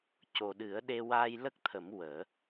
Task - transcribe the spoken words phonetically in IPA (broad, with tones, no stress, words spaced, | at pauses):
co˨˩ɗɨ˨˩˦ə̯ɗe˧ waː˧jlə˦˥k̚t̪ʰə˨˩˦m wəː˨˩˦